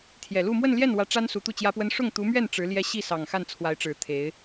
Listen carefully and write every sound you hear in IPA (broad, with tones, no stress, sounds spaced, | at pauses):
t̪ʰ j ɛ˨˩ l u˥˧ m w ə˥˧ n l j ɛ˥˩ n w ä˧˥ ʈ͡ʂ a˥ n s u˧˥ t̪ u˥˩ t͡ɕ j ä˥ p w ə˥ n ʂ ʊ˥˩ ŋ t̪ u˧˥ m ɥ ɛ˥˩ n ʈ͡ʂ ɻ̩˧˥ l j ɛ˥ ɕ i˥˩ s ɑ˨˩ ŋ x a˥˩ n t͡sʰ w a˧˥ ɪ̯ ʈ͡ʂ ɻ̩˨˩ t̪ʰ e˧˥ ɪ̯